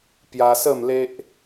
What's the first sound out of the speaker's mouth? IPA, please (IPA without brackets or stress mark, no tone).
p